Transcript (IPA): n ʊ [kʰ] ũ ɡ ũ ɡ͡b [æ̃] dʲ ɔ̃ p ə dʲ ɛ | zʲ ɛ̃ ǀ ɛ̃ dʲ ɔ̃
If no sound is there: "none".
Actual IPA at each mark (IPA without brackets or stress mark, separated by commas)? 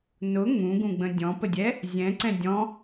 ŋ, ə̃